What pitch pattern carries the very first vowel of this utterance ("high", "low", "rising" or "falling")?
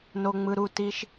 low